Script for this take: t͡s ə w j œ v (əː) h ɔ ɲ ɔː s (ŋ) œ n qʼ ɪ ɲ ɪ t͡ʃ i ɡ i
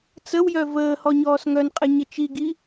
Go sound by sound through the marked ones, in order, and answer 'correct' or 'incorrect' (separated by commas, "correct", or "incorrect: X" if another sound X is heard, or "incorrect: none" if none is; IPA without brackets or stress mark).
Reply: correct, correct